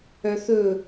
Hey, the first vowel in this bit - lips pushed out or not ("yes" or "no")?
yes